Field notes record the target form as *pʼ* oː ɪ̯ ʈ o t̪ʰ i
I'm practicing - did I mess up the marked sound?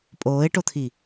no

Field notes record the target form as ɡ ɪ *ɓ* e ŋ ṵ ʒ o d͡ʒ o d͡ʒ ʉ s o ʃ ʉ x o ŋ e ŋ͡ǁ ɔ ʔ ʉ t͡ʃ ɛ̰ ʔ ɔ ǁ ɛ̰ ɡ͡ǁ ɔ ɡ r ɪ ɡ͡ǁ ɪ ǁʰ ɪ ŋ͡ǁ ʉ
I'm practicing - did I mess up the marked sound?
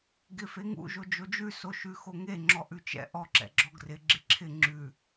yes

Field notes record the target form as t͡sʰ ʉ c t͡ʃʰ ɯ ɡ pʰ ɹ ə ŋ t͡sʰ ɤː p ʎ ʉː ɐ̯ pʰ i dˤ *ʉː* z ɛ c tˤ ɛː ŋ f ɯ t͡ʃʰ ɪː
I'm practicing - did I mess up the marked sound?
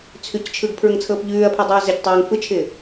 no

